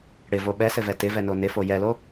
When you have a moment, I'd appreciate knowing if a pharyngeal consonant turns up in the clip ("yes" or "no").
no